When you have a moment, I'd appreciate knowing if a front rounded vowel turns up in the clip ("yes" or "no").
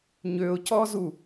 yes